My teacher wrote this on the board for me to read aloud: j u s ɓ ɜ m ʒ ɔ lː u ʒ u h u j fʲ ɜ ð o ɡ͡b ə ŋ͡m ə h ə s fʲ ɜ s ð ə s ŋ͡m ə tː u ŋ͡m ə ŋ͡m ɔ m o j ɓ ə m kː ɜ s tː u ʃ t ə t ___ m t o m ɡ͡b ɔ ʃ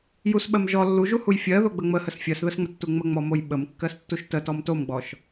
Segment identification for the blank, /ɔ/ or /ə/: ɔ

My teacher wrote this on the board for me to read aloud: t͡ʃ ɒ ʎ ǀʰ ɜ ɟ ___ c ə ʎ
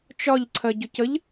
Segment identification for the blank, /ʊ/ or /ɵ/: ʊ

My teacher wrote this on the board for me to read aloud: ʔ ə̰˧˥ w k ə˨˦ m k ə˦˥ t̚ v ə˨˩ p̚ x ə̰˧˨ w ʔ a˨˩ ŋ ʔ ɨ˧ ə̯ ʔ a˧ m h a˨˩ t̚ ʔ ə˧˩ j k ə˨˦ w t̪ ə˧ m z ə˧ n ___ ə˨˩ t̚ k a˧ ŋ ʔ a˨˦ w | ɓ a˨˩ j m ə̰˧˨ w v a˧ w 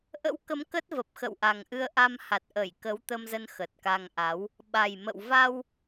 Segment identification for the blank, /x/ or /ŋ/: x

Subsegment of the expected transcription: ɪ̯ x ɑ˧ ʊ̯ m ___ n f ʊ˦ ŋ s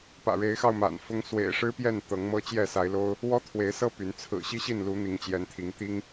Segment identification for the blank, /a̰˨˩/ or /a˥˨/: a̰˨˩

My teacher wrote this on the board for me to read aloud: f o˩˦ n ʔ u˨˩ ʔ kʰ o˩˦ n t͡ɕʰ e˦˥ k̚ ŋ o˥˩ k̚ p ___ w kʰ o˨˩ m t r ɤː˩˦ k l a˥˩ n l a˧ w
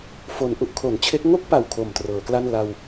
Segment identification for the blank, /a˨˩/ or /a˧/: a˨˩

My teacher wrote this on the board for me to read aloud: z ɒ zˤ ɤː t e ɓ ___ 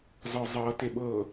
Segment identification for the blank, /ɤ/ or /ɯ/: ɤ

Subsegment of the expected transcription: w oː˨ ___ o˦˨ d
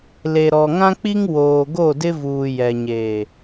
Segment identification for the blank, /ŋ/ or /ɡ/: ɡ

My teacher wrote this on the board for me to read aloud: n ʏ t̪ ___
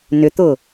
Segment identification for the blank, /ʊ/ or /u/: ʊ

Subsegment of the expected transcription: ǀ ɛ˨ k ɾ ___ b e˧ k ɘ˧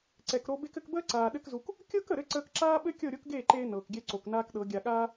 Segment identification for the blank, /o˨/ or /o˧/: o˧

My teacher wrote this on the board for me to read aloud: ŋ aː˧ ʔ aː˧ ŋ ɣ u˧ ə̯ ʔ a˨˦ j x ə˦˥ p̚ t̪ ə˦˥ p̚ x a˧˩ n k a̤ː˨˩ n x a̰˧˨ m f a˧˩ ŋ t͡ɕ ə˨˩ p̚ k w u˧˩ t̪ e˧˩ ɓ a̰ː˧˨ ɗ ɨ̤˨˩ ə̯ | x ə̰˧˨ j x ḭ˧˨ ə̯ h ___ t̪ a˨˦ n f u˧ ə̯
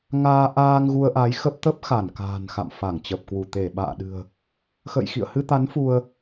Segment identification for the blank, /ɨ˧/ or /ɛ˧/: ɨ˧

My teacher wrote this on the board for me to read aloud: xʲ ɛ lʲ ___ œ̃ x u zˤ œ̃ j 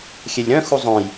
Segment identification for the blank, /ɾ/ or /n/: ɾ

